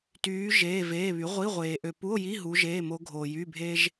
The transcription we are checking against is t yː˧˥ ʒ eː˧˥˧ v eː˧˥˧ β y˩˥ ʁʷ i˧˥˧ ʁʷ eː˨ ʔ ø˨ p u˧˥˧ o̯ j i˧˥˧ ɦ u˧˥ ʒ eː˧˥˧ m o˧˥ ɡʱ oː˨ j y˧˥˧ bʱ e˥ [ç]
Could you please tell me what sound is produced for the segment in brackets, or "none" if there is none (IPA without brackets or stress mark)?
ʒ